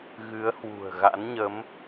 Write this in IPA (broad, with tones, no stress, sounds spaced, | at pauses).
ɣ ɨ˨˦ ə̯ h w ṳ˨˩ ə̯ ɣ a̰˧˥ n ɲ ə˨˦ m